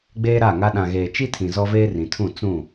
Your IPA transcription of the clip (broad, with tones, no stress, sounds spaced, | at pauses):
ɡ͡b eː˦ ɾ a˦˨ ŋ a˦ ɗ ã˨ ɣ eː˨ t͡ʃ i˦ tʰ ĩ˨ z ɔ˦ v eː˦ r ĩ˨ tʰ ũ˦˨ t͡s ũ˦˨